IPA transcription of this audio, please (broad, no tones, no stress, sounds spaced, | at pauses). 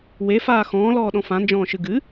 w e f aː x ɔ̃ː l ɔː ɗ ɔ̃ f ã n d͡ʒ ɔ̃ː ʃ ɨ ɡ ɨ